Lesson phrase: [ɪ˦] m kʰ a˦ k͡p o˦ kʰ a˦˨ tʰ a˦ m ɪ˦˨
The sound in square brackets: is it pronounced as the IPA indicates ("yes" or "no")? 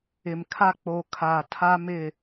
no